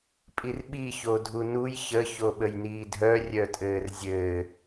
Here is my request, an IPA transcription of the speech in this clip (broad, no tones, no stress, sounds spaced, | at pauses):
pʼ i r ɓ i ç o dʱ u n u j ç ə ç o ɓ ə j n iː dʱ œ rʲ œ tʼ ɘː r zʲ ɘː